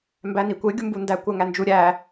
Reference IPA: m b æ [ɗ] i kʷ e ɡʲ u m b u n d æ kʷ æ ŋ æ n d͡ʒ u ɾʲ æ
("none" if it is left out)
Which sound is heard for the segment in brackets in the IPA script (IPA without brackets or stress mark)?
n